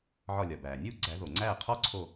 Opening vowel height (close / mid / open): open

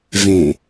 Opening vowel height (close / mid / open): mid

